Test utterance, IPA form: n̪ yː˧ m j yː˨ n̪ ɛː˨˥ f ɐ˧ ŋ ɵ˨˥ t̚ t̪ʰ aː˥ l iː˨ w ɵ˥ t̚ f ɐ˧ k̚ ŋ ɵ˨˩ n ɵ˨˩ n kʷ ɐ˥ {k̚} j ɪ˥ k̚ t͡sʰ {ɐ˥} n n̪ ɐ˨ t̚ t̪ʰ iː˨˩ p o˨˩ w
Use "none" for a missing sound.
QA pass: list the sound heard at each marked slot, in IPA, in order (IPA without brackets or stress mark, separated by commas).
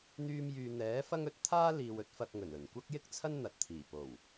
k̚, ɐ˥